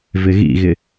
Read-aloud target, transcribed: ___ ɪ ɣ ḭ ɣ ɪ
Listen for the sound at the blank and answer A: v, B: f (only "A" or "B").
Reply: A